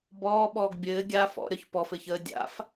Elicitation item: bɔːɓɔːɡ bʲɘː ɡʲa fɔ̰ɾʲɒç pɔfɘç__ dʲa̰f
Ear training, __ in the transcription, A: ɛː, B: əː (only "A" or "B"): B